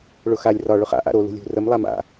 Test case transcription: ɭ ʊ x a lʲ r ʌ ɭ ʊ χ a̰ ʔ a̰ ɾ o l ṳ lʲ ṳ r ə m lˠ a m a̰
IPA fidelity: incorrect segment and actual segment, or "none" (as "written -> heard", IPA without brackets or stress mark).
ʌ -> ɒ